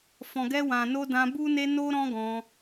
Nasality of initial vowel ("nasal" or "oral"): nasal